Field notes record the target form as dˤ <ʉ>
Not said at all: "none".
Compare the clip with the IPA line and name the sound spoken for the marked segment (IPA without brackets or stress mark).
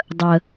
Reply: ə